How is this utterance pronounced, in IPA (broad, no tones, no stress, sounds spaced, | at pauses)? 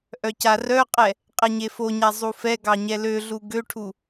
ʔ œ c a r œ qʼ ɛ | qʼ ɛ ɲ e f o ɲ a zˤ u f ɛ ɡ ɑ ɲ ɛ l ø ɮ u ɡ ø ʈʰ u